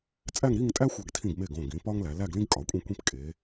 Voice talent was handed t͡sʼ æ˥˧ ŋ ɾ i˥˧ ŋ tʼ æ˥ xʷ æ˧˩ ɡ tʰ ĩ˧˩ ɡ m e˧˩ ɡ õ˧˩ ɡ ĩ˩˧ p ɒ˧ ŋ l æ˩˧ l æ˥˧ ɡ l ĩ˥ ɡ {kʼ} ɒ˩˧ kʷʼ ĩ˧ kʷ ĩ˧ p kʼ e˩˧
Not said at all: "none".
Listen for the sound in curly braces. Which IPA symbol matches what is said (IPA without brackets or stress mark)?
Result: kʼ